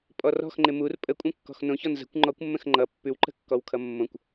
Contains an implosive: no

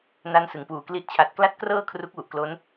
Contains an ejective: no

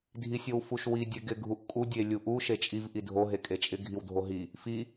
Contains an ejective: yes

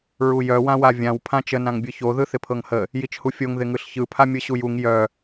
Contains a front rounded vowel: yes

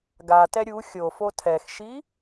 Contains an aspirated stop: yes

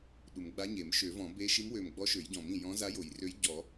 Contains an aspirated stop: no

